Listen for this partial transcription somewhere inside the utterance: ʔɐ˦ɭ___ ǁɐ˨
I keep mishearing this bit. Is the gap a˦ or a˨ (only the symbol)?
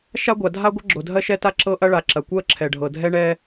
a˨